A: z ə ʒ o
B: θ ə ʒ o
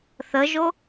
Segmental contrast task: B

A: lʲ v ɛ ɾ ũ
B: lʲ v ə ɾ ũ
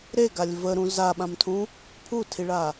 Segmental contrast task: B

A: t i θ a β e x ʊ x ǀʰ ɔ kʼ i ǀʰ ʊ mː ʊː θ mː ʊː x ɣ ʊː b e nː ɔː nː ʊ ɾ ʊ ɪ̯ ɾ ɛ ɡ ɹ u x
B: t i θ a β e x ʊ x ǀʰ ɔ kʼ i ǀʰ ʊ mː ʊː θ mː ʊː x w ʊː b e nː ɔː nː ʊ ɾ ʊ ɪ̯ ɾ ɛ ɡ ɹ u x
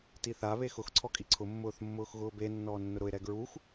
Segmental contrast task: A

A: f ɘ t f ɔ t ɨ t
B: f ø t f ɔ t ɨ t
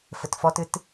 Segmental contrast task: A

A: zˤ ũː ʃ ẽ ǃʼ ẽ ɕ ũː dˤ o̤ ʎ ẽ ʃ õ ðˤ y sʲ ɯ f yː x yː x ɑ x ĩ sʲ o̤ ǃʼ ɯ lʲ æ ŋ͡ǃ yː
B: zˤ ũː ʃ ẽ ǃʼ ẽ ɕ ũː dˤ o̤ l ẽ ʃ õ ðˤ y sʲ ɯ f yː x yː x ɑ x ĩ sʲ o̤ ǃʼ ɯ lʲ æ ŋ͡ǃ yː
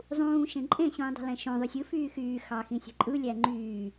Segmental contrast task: B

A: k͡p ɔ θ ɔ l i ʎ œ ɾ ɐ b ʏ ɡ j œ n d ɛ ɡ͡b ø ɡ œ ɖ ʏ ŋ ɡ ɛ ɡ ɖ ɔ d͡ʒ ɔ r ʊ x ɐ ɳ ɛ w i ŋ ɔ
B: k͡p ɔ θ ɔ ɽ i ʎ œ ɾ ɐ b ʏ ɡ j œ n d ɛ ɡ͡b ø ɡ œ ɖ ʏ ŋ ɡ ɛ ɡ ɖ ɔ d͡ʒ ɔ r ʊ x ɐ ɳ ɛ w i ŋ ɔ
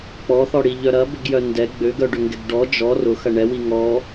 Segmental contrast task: B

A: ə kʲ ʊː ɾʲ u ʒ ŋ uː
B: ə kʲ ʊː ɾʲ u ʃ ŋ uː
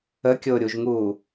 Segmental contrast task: A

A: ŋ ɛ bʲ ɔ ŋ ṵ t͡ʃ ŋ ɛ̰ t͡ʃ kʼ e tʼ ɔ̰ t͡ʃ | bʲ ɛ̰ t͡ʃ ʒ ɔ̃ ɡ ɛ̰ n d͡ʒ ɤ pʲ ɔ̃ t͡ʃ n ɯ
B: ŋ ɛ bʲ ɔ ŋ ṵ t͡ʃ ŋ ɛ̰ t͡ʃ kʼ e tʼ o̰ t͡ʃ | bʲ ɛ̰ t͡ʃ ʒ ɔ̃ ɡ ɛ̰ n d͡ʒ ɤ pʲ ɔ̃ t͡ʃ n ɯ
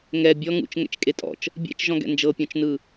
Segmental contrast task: A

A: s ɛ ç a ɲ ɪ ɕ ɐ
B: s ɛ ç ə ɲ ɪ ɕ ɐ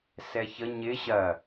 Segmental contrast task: B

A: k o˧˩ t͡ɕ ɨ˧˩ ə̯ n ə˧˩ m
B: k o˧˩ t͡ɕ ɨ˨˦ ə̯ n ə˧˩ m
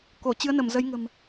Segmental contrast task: B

